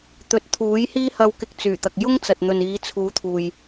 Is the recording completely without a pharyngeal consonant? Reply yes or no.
yes